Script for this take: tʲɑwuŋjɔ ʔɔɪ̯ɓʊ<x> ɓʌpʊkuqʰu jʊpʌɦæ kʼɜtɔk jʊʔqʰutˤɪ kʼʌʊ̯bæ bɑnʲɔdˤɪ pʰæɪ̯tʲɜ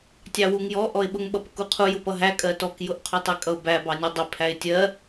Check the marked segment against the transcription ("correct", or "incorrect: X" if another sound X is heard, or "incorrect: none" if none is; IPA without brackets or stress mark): incorrect: ŋ